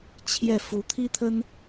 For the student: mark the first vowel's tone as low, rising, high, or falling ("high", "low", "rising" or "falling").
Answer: falling